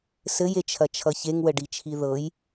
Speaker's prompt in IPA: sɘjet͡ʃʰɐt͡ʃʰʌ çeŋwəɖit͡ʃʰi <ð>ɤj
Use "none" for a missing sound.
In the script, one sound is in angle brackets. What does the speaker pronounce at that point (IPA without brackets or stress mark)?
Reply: ð